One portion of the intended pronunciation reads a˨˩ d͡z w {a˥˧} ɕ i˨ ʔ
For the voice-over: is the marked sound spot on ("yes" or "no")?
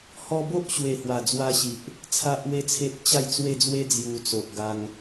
no